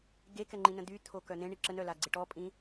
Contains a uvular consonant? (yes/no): no